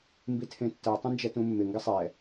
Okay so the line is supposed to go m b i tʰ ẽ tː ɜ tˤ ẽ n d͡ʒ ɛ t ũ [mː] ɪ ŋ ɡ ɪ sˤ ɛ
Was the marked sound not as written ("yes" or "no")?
no